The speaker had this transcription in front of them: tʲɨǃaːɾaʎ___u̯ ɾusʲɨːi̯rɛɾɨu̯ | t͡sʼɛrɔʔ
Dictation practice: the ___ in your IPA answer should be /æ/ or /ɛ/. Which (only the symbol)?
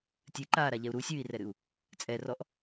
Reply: ɛ